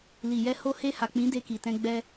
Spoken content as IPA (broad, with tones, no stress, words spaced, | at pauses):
li˨jɛ˧ ho˧he˧ ha˨k͡pĩ˨˦ de˧ki˨tɛ̃˧ ɡ͡bɛ˧